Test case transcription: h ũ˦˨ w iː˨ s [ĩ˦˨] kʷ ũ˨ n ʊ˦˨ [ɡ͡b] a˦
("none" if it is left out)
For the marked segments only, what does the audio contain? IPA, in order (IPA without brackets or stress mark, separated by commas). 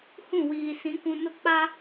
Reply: ĩ˨˦, k͡p